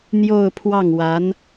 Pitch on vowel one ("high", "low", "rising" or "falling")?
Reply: falling